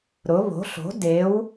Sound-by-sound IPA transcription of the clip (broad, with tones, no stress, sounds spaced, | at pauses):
ɾ ʊ˩˥ β o̤˩˥ ɬ o̤˩˥ d e˩˥ w